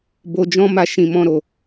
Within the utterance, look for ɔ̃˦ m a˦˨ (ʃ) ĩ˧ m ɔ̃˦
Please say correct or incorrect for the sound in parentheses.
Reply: correct